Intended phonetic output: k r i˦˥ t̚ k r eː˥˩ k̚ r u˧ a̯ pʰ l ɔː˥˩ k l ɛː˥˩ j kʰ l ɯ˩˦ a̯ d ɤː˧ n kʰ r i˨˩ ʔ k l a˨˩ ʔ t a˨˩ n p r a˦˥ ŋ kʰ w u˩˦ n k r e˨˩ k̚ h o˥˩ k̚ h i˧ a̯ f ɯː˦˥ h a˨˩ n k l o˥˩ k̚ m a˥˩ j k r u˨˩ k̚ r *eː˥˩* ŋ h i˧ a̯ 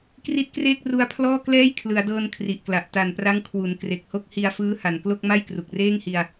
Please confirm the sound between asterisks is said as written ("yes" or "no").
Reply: yes